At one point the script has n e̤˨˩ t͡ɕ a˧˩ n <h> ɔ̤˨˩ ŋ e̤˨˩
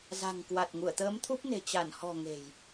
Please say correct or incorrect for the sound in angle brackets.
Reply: correct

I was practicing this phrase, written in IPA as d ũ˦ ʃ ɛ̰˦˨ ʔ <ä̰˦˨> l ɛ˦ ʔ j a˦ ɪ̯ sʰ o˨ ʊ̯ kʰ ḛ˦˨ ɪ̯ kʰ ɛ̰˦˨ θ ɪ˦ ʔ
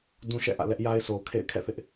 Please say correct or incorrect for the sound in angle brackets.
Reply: correct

